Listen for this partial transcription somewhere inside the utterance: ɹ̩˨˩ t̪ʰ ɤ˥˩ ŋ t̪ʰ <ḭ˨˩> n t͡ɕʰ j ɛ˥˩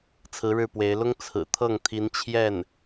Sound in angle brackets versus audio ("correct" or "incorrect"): incorrect